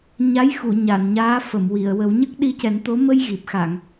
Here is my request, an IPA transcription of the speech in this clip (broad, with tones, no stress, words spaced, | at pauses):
ɲa˧˥jxu˨˩˨ ɲa˨˩˨nɲaː˧˥ fə˨˩˨m wi˨˩˨ə̯wə˨˩˦w ɲə˦˥k̚ɗi˧cɛ˨˩˦nt̪o˧˥ mə˧j ɣi˨˩p̚xa˨˩˨ŋ